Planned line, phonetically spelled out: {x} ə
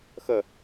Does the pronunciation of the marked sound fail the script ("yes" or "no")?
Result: no